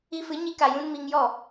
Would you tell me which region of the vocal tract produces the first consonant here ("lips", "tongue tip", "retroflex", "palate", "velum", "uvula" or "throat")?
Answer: lips